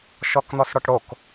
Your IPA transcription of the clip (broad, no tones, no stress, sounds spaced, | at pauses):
ʃ ɔ k n̪ ɔ s ɽ ɔ ʈ ɽ o k